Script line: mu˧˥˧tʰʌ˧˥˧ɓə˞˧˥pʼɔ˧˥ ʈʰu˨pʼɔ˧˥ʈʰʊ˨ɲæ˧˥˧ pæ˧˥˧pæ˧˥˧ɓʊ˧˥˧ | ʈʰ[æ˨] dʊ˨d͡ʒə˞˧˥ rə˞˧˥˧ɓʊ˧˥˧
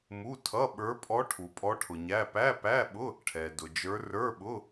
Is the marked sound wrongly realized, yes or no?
yes